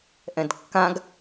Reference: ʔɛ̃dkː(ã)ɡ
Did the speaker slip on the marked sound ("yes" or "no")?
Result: no